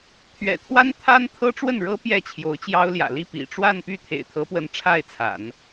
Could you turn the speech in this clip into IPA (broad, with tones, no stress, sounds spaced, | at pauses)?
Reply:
t̪ʰ ɥ ɛ̰˨˩ t̪ʰ w a˥ n t̪ʰ a˥ n t̪ʰ ɤ˥ ʈ͡ʂ w ə˥˩ n ɻ ɤ˥ p j ɛ˥˩ t͡ɕʰ j o˧˥ ʊ̯ t͡ɕ j ɑ˥ ʊ̯ l j ä̰˨˩ l i˥˩ p ḭ˨˩ ʈ͡ʂ w a˥˧ n p y˥˩ t̪ʰ ḛ˨˩ ɪ̯ t̪ʰ ɤ˧˥ p w ə˧˥ n ʈ͡ʂʰ a˥˩ ɪ̯ t͡sʰ a̰˨˩˦ n